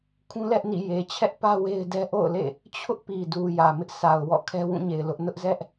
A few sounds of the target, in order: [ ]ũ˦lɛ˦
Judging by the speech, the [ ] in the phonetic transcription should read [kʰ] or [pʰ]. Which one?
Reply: kʰ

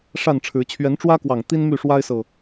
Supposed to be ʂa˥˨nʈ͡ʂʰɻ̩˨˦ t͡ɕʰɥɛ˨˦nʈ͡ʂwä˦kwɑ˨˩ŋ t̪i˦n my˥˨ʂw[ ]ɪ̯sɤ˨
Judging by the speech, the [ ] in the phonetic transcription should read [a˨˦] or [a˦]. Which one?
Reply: a˦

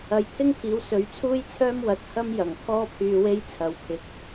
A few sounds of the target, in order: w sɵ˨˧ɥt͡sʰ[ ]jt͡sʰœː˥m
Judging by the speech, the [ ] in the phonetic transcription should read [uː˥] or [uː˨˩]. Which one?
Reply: uː˥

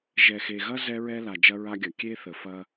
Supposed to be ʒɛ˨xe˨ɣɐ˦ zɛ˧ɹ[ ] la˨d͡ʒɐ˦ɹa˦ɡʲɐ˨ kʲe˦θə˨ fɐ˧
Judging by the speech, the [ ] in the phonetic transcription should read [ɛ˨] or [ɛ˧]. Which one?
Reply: ɛ˧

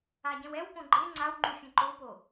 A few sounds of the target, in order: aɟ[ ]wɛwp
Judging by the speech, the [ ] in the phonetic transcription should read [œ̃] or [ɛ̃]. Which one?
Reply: ɛ̃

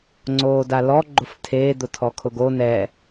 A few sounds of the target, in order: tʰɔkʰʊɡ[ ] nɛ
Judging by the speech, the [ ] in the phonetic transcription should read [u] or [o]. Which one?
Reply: o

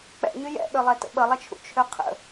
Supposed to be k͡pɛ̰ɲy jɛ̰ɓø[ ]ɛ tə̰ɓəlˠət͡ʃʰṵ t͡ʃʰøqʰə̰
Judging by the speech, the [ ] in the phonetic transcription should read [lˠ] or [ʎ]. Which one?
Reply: lˠ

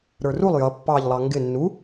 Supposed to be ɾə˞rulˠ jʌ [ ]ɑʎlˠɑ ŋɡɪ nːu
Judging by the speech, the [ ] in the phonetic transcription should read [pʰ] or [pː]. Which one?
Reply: pː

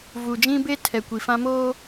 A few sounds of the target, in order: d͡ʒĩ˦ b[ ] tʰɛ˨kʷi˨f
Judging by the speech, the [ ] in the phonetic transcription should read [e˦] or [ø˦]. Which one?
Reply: e˦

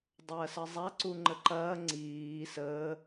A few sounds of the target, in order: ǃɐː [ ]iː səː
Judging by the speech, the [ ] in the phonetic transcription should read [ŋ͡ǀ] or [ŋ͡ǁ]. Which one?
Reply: ŋ͡ǀ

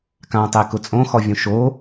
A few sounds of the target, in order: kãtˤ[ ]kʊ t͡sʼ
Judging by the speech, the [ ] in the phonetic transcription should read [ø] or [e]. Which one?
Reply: e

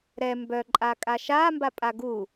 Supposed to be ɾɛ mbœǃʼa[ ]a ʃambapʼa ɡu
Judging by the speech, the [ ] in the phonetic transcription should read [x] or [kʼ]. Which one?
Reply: kʼ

